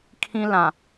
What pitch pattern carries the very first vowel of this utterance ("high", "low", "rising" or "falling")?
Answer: high